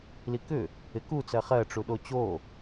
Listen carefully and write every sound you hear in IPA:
likʏ | ɪku t͡sɜχɜ ʈ͡ʂuɗot͡ɕo

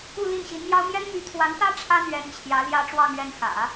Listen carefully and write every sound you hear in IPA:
u˥˧li˥˩nɕi˧˥nmjɑ˥ʊ̯ mjɛ˥n my˧˥t̪ʰwa˧˥nt̪ä˥ ʈ͡ʂʰä˥n̪ɥɛ˧˥n t͡ɕʰjä˧˥ ljä˥ʈ͡ʂwɑ˥˧ŋɥɛ˥˩n xä̰˨˩˦

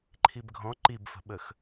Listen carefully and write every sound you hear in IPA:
ǃʰibɡʱɔ̃ ǃibfə̤ɓəx

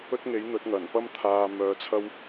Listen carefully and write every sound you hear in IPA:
ɵ˥t̚ŋe˨˥jn̪ɵ˨˥t̚ ŋɐ˨˩npɐ˥mt̪ʰaː˧ mœː˧t͡sʰɐ˥w

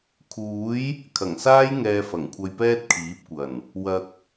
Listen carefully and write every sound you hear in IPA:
kʰuː˨˥j | kʰɐ˨˩ŋsaː˥j ŋɛː˧fɐ˨˩ŋkʷʰɐ˧jpɛː˥t̚ kʰiː˨˥p̚kʷɐ˨˩n | wɐ˨k̚

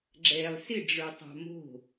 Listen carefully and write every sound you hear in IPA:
ɡ͡ǁɛlˠ sɪɖ͡ʐə˞tˤɑ̤ mo̤

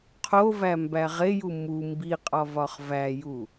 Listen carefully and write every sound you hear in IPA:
qʰovæmbæ ʁeju mu mbiqʼɒvɒχ væju

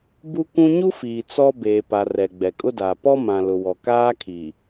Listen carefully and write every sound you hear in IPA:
bu˦kʷũ˦ ɲu˦fiː˨ t͡sɔ˦ beː˨pa˨ rɛ˨ ɡ͡bɛ˨kʼʊ˦daː˨ pɔ˦mã˨lʊ˨wɔ˨ kaː˦kʰi˨

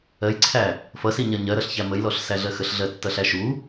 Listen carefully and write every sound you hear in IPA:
ɜjǀʰæ | fʌsiɲɜ ɲɜɾʌɬçæ məjlɔɬsæɮɜ xəɬɮɜtːʌɬæ ʃu

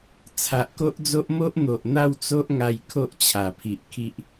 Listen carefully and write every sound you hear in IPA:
t͡sʰa˨ʔko˦ʔd͡zo˦ʔ mo˦ʔn̪o˨ʔn̪a˥˧w t͡so˦ʔŋa˧j kʰo˦ʔ t͡ɕʰa˨˩pʰi˨ʔ kʰi˦ʔ

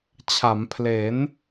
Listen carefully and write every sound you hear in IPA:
t͡ɕʰa˩˦mpʰle˩˦n

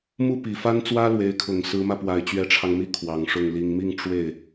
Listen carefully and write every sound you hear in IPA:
mu˥˩pi˨˩fa˥nt͡swä˥ lwe˧˥ɪ̯kʰʊ˨˩ŋ sɹ̩˧˥mä˧pwa˨˩ɪ̯ t͡ɕɥɛ˧˥ʈ͡ʂʰɑ˧ŋmi˥ kʰwɑ˨˩ŋʂʊ˥˩ŋ li˨˩ŋmi˥˧ŋ ʈ͡ʂwe˥˩ɪ̯

